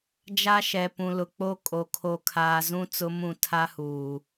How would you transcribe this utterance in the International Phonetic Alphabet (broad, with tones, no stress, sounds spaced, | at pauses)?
d͡ʒ a˦ ʃ ɛ˨ p ũ˨ l ʊ˨ k͡p o˦ kʼ o˨ kʰ o˨ kʰ aː˨ z ũ˦ t͡s ʊ˦ m ũ˦˨ tʰ a˦ h uː˨